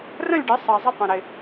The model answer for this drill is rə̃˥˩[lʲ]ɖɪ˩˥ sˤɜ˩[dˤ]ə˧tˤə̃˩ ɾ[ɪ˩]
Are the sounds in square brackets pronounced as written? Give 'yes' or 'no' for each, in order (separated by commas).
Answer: yes, no, yes